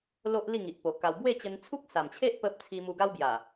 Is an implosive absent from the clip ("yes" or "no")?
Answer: yes